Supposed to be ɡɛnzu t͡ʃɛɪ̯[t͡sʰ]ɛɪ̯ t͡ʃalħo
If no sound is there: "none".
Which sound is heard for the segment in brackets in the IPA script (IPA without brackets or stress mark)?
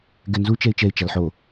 t͡ʃ